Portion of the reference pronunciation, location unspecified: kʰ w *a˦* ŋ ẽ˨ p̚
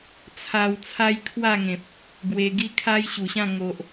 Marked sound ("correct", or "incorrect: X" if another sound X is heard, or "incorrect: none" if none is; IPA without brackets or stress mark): incorrect: a˥˧